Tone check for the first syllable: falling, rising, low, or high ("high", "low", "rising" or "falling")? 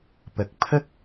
low